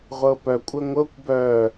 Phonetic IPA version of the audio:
ʁʷ ɤ p œ kʷʼ ə ŋʷ ɤ kʷ b œ

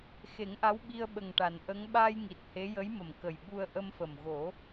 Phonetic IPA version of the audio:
x e˨˩˦ ŋ ʔ a˧˥ w ɓ i˧ ə̯ ɓ ə˨˩ ŋ ʈ a˨˩˨ n ʔ ə˧˥ ŋ ɓ aː˧ j ŋ i˨˩ t̚ h e˧˥ j ə˧˥ j m ə˨˩ m k ə˨˩ j ɓ u˧ ə̯ ʔ ə˧ m f ə˨˩ m ɣ o˨˩˦

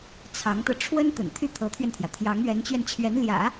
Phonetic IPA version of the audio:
t͡sʰ ɑ˧˥ ŋ t̪ ɤ˧ ʈ͡ʂʰ w ə˥ n t̪ ə̰˨˩ n t̪ʰ y˥˩ t̪ʰ ɤ˧˥ t̪ʰ ɥ ɛ˧ n t̪ʰ j ä˩ t̪ʰ j ɑ˧˥ ŋ ɥ ɛ˧˥ n t͡ɕ ɥ ɛ˧ n t͡ɕʰ ɥ ɛ˧˥ n l j ä̰˨˩˦

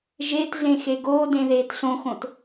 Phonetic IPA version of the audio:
ʒ e t ɮ ẽ x e ɡ oː d ẽ ð eː t ɬ õ x õ t

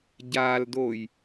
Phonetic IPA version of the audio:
ɟ aː l d oː j

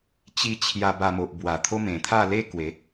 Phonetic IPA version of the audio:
t͡ɕ i˧ t͡ɕʰ j a˧ b a˧ m o˨ ʔ b w a˨˩ t̪ʰ o˦ m ẽ˨˩ t̪ʰ a˥˧ l e˦ k w e˨˦

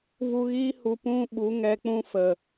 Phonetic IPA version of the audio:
v u˧ ɣ iː˦ h u˧ p ũ˧ ɓ u˨˦ ŋ ɛ˧ k͡p ũ˦ f ə˨

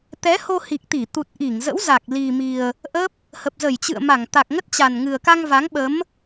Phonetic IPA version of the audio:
t̪ ɛ˨˦ h o˧ h i˨˩ k̚ t̪ i˧˩ t̪ u˨˩ t̚ ʔ i˧˩ ŋ z ə̰˧˥ w z a˨˩ k̚ l i˨˩ m i˨˩ ə̯ | ʔ ə˦˥ p̚ | h ə˨˩ p̚ z ə˧˩ j t͡ɕ ɨ̰˧˨ ə̯ m a˧˩ ŋ t̪ a˨˩ k̚ ŋ ə˦˥ t̚ t͡ɕ a˨˩ n ŋ ɨ˨˩ ə̯ k a˧ ŋ v a˨˦ ŋ ɓ ə˨˦ m

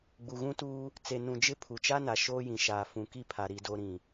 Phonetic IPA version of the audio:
ɡ͡b u˨ ɣ ũ˦ t uː˦ | t͡s e˨ n ũ˨ d͡ʒ ɪ˦ pʰ u˨ t͡ʃ a˦ n a˨ ʃ oː˦ j ĩ˨ ʃ aː˨ f ũ˨ k i˦ pʰ a˨ ɾ i˨ d o˨ ɾ ĩ˨

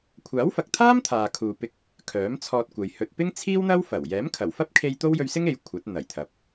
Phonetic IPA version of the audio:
kʷʰ aː˨˥ w f ɐ˨ k̚ t̪ʰ aː˥ m t̪ʰ aː˨ kʰ uː˨ p ɪ˧ k̚ | kʰ œː˨˥ m t͡sʰ ɔː˧ t̚ kʷ ɐ˨ j h ɵ˨ t̚ p ɪ˥ ŋ t͡sʰ iː˥ w n̪ ɐ˥ w f ɐ˨˩ w j ɛː˨˥ m kʰ ɐ˨˩ w f ɐ˥ p̚ kʰ e˧ j t̪ o˥ w j ɵ˧ ɥ s ɪ˥ ŋ e˨ j kʷʰ ɐ˨˥ t̚ n̪ ɐ˨˩ j t̪ʰ ɐ˨ p̚

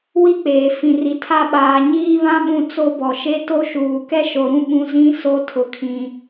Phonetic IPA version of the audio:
w i˦ k͡p eː˨ f ĩ˨ r i˨ tʰ a˦ ɓ aː˨ ɲ iː˦ β ã˦ ɓ ũ˦ t͡s o˦ b ɔ˨ ʃ e˦ t o˦ ʃ uː˨ k ɛ˦ ʃ o˨ ɾ ũ˦ ɓ ũ˦ z ĩ˦ s o˦ tʰ ʊ˨ kʰ ĩ˨

